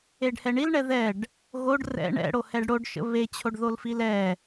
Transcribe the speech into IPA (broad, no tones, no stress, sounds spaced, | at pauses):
e ɖ h ɛ ɳ i l ɳ ɛ ð ɛ ɖ | ɣ o ɖ r ɛ̰ ɳ ɛ̰ ɽ o h ɛ ɖ ɽ o ɖ ʃ ə̰ β e t͡ɕʰ o ɖ ð o l f i l ɛ